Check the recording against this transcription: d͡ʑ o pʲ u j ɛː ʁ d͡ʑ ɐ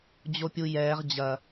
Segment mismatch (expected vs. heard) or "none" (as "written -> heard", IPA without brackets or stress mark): none